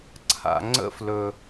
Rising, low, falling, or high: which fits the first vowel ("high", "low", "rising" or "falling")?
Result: low